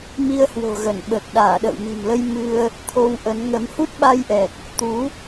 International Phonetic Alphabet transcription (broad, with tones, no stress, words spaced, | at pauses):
mi˧ə̯hwo̤˨˩ɣə˧˩n ɓəː˨˩k̚ ɗaː˧˩ɗə̰ː˧˨wmi̤˨˩mlə˧j mɨ˧ə̯ | t̪ʰo˧wʔə˨˦n ŋə˨˦m hu˦˥t̚ɓa˧jʔɛ˨˩k̚ | t̪u˨˦